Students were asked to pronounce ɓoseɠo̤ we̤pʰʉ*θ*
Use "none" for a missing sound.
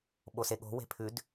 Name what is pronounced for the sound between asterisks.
d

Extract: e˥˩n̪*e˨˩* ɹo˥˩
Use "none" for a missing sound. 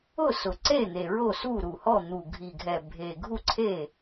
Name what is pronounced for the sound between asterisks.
e˨˩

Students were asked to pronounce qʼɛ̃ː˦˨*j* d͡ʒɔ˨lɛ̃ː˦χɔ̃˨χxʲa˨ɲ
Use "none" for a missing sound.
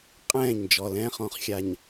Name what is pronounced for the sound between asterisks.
ɲ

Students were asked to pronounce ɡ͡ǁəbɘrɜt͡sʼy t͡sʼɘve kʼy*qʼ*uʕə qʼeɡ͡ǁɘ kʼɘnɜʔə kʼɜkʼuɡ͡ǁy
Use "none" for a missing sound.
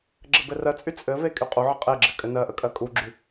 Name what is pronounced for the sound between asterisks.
qʼ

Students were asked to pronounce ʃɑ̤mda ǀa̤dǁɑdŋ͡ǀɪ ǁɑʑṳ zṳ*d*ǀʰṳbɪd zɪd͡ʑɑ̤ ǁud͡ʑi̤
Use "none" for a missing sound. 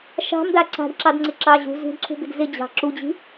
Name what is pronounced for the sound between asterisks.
d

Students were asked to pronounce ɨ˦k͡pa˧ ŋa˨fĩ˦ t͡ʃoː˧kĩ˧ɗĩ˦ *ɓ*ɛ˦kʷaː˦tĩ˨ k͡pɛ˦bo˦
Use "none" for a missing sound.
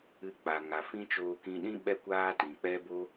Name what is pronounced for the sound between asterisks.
ɓ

